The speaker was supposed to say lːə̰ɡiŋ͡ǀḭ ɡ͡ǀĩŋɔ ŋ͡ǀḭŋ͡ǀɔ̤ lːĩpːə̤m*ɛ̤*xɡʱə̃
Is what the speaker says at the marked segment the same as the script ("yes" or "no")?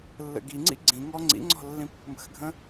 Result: no